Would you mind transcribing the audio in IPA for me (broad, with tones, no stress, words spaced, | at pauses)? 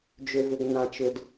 d͡ʒʏ˨vʏ˨ɡnã˨t͡ʃʏ˨d